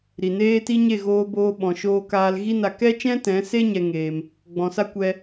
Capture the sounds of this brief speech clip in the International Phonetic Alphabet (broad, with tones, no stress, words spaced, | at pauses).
ɾi˨neː˦ti˦ ɲe˦˨ɣoː˧boː˧ɓɔ̃˨ ʃoː˧kaː˧lɣi˦na˧ kɛ˦t͡ʃɛ̃˦tɛ̃˨˦se˦ ɲɛ˧ ŋeː˧m | ɡ͡bɔ̃˨sa˦kʷɛ˧